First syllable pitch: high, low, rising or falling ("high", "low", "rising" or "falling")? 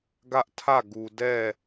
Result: high